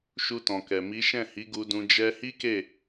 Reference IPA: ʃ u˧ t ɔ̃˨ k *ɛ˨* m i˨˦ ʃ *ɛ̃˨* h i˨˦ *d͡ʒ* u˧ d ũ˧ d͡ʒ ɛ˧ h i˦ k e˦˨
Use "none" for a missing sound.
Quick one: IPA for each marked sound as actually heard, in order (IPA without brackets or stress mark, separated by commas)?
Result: ɛ˨, ɛ̃˦˨, ɡ